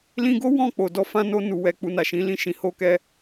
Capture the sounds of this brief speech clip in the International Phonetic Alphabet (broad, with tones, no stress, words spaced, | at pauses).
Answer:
lĩ˧ɡo˦ wɔ̃˦˨k͡po˨ dɔ˨˦fã˧no˧ nu˨wɛ˨ k͡pu˧na˨ʃĩ˨˦lĩ˦˨ ʃĩ˨ho˧kɛ˧